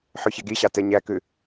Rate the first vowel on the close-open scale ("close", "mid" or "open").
close